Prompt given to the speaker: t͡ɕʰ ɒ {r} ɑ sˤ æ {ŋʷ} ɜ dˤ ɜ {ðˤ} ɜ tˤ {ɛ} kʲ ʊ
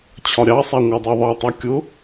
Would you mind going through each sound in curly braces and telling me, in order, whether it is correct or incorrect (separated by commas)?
incorrect, correct, correct, incorrect